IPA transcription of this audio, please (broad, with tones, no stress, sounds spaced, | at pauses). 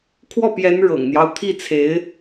kʰ w ɔ˥˩ p j ɛ˧˥ n ɻ ɤ̰˨˩ ŋ n̪ j ɑ˦ ʊ̯ t̪ʰ i˥˩ t͡sʰ e˧˥ ɪ̯